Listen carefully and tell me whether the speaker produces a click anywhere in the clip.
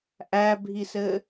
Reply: no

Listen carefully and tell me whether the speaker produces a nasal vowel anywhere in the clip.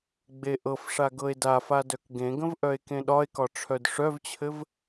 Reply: yes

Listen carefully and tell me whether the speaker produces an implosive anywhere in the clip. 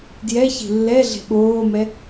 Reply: yes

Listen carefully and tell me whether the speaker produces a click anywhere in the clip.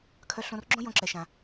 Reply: yes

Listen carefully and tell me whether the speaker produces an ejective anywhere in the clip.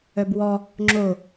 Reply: no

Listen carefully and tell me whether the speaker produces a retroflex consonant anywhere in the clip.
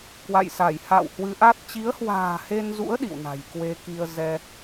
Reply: no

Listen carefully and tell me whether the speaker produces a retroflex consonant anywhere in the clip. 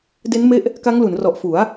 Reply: no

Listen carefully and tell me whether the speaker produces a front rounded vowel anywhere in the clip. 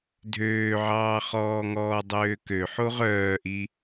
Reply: yes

